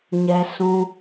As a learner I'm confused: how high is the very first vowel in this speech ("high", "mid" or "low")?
mid